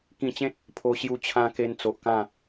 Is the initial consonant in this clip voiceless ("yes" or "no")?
yes